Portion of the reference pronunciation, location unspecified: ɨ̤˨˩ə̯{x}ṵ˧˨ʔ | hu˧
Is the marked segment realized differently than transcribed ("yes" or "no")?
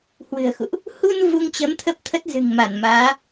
no